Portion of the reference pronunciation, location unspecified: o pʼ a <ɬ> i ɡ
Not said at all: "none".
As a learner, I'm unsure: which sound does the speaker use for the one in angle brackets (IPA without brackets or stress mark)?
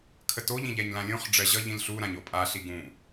ɬ